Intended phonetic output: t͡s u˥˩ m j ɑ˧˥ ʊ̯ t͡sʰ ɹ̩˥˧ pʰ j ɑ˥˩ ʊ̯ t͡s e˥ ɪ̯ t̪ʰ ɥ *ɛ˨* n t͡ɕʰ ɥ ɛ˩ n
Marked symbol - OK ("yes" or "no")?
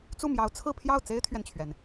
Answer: yes